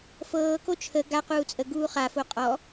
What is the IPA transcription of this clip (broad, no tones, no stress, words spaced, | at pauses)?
fɤː kot͡ʃʰə ɡa quːt͡sʼə ɡuːχafo qʼɔ